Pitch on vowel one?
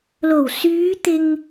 low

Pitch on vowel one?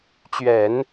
low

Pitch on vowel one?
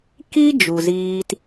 high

